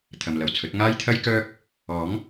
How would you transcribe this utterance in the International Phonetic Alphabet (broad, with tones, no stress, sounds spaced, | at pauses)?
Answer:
t̪ʰ ɐ˨ m l ɐ˨˩ w t͡sʰ ɵ˨˥ t̚ ŋ aː˥ j t̪ʰ ɐ˥ j k œː˥ k̚ | ɔː˨˥ ŋ